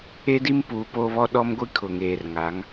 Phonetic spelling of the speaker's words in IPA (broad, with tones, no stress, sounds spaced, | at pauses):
e˦ d i˦ m p uː˨ p oː˦ β ɔ˦ ɗ ɔ˦ m ɡʷ i˦ kʰ ʊ˨ ŋ eː˨ r ŋ a˨˦ ŋ